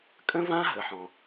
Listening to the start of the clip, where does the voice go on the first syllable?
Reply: high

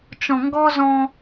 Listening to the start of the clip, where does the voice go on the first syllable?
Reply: low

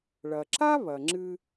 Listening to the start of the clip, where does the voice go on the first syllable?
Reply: low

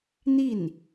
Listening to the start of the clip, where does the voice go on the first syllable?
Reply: falling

